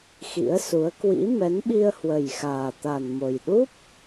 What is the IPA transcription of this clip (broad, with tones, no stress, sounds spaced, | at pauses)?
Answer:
x ḭ˧˥ ə̯ s u˨˦ ə̯ k w ḭ˧˥ m ɛ˨˦ n ɓ i˧ ə̯ h w ə˨˩ j x aː˨˩ t̪ a˨˩ n m o˨˩ j ɗ u˦˥ p̚